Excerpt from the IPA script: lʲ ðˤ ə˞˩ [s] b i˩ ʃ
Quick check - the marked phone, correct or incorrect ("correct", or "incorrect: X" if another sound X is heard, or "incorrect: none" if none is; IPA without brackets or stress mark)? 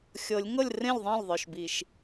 incorrect: ʃ